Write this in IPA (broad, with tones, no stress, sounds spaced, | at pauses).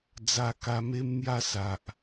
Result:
d͡z a˧ k a˧ m e˦ m n̪ j a˥˧ s a˨ ʔ